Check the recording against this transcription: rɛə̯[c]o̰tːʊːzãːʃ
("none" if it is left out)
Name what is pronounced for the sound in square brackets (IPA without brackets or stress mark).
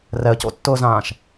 c